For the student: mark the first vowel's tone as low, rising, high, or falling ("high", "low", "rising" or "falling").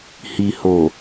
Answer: low